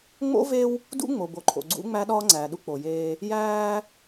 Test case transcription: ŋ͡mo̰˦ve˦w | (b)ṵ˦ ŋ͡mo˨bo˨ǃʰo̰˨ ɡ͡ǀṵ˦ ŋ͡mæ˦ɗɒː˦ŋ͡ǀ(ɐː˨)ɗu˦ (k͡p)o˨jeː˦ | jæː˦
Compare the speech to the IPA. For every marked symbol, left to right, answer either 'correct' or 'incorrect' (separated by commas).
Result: incorrect, incorrect, correct